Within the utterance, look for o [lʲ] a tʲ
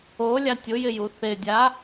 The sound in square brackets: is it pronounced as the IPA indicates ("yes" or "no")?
yes